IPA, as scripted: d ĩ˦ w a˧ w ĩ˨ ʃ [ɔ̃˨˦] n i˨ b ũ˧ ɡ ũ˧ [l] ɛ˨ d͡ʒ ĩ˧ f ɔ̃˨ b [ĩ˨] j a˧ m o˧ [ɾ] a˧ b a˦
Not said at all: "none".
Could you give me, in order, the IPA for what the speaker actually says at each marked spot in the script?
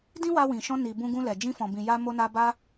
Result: ɔ̃˧, l, ĩ˨, n

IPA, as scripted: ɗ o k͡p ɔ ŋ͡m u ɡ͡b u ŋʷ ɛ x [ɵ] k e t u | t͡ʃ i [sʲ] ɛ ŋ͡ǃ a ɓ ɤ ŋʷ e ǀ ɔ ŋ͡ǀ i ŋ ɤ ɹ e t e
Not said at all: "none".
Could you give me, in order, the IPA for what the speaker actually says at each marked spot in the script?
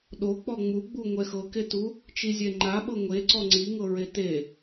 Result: ɤ, zʲ

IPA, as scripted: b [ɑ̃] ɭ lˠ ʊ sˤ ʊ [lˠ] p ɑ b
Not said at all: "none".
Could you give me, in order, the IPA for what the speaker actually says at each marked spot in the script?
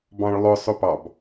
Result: ɑ̃, none

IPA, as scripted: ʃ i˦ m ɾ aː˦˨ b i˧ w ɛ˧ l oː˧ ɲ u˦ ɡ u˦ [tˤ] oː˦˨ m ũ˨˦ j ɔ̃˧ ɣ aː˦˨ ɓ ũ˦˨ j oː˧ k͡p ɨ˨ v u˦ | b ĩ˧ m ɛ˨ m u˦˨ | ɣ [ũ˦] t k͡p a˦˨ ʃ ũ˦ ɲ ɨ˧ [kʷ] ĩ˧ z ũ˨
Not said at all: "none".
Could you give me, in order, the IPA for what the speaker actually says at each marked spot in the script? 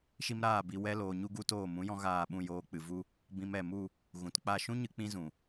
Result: t, ũ˨˦, k͡p

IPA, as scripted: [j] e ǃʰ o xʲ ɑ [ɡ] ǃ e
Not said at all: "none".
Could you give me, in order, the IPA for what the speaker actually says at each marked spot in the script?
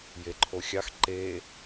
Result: j, x

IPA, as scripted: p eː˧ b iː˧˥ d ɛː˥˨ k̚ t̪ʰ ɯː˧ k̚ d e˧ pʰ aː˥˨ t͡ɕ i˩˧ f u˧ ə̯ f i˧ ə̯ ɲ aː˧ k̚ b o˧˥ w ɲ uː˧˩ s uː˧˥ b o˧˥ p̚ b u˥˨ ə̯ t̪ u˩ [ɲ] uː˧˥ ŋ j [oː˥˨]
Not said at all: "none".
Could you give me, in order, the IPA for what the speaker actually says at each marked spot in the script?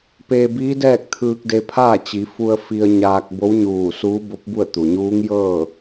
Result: ɲ, ɤː˥˨

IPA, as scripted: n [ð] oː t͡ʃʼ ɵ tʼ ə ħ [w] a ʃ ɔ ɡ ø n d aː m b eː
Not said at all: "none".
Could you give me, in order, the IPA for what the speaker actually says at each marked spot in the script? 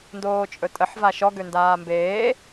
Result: d, v

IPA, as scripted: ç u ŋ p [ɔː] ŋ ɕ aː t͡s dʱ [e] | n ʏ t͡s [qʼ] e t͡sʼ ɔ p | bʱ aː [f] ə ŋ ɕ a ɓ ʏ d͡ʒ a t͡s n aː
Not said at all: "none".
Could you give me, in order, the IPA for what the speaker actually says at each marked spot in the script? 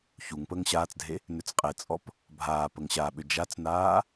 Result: əː, e, qʼ, p

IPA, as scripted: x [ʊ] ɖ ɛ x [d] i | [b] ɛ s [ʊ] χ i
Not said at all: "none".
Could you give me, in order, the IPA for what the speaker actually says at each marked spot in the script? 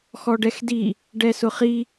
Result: ɔ, d, ɖ, ʊ

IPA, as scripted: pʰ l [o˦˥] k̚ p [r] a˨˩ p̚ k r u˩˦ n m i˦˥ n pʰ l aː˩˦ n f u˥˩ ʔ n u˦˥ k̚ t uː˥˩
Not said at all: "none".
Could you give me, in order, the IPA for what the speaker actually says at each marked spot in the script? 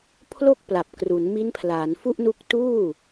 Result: o˥˩, l

